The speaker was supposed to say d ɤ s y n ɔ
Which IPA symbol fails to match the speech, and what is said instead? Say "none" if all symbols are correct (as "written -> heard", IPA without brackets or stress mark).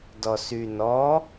ɤ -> ɔ